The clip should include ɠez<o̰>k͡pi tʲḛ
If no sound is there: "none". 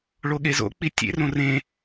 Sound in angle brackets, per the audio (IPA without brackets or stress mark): o̰